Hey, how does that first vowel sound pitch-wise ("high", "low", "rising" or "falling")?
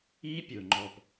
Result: high